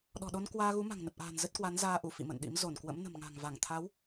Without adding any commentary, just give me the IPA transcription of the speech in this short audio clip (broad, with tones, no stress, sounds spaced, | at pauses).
ɗ ɔ̤˨˩ ɗ o˧ n k w aː˧ ɣ u˨˦ m a̤˨˩ ŋ n ə˨˩ p̚ ʔ a̤ː˨˩ n z ə˦˥ t̚ k w a˨˦ n z aː˧ ʔ u˧˩ f ḭ˧˨ m ə̰˧˨ n ɗ ḭ˧˥ m z o˧˩ n k w ə̰˧˥ m n ə̤˨˩ m ŋ a̤˨˩ ŋ v a˧˩ ŋ t̪ʰ a˨˦ w